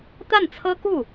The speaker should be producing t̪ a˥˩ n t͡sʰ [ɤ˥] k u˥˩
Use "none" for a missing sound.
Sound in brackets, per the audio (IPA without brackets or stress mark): ɤ˥